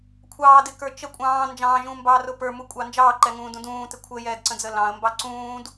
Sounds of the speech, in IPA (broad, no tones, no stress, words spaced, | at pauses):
kʷʰɑːdɪkə˞ t͡ʃə kʷʼɑ̃ː nd͡ʒɑ̃ːʒũːmbɑːrʊ pə˞mukʷʼɑ nd͡ʒɑːǃɛŋũːdũ dũːtɪ kʷʰəjɛːdǀə̃d͡zə lɑ̃ə̯mbɑ ǀũːd